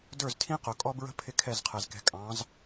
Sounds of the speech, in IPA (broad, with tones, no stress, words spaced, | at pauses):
də˞˦˨ztʰĩ˦qʊ˨kʼɔ˦ bɹə̤˦ pʰɪ˦kʰɛ˦˨zqʰɛ˨z kɛ̤˨ kʼɑ̃˨˦z